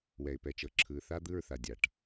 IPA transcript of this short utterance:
wɛ˨ɪ̯ pɛ˨t͡ʃɤ˨ǁʰɯː˨ θa˦d̪ɯ˦˨ɹθa˨dʲa˨ʈ

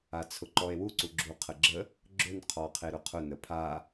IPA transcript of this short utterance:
at͡sʰʊǃɔe̯wu ǀuɡ͡ǁuqʰəɡ͡ǁə | ɡ͡ǁʊn qʰɔqʰeɾʊqʰʊ nəpʰa

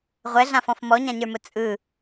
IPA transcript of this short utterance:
ʁʷɛɮãfɔ̃f mɔɲãɲə˞mʊ t͡sʼɯ

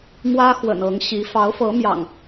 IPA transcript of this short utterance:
mwä˦ xwə̰˨˩nɤ˨˦ŋɕi˨˦ fɑ˨˦ʊ̯fɤ˨˦mjɑ̰˨˩ŋ

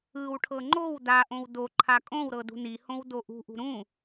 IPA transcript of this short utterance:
ɯwʈʰɤ ŋ͡ǃow daʔõw do ǃʰakʼõwɾɤ dṳnihõw doʔṳʔṳ ɾũ

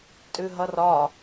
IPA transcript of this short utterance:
tʼʉɦʌrɒ

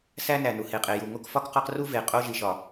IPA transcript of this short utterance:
sæ˦næ˨nu˨ he˨qʼe˨ju˨ ŋo˦kfɒ˦kqɒ˦qru˦ ve˨ qʼo˦ʒi˨ʃɒ˨

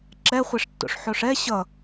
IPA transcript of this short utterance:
ǁɛχʷɛʂtːo̰ʂħoʂ ɛ ɕʌ

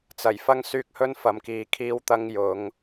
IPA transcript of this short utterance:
t͡sɐ˨˩jfɐ˧ŋ syː˧k̚hɵ˧n fɐ˨mkiː˨kʰiː˧w t̪ɐ˧ŋjʊ˨˧ŋ

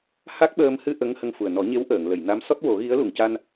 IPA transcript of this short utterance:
ha˦˥k̚ɓəː˧m hɨ˧ ʔə˧˥ŋ hə˧ŋfu˨˩ə̯ nɔ˨˩˦ɲe˧˥w ʔəː˨˩˨ŋlə˨˩˨jna˧˥m sɔ˦˥t̚wo˨˩˦ɣi˧˥ə̯ lu˨˩˨ŋca˧n

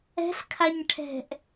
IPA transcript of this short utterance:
ɛ̤ɬkʰaɲ ʈʰɛ̤ʔ

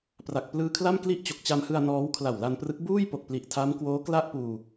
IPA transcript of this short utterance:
pra˨˩k̚plɯː˦˥kʰla˥˩m kli˥˩ʔt͡ɕo˨˩k̚t͡ɕa˧m hɯ˧a̯ nɔː˦˥wkʰla˨˩wla˧nprɯ˦˥k̚ buː˥˩jpo˨˩k̚ pli˨˩ʔtʰa˦˥mkwoː˦˥ kla˥˩ʔpuː˧

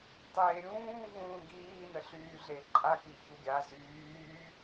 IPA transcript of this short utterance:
tˤeːɾʲũː vũːɡiː nəɬyːɮeǃʼa kiçuɡʲa zyː

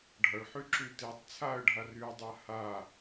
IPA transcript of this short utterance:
ɖʱʌɭħy ǁytetˤ t͡sʰaə̯ɖʱa rydˤa ha

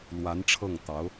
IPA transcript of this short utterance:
lwa˧˥nʈ͡ʂʰɤ˥˩ŋt̪ɑ˧˥ʊ̯

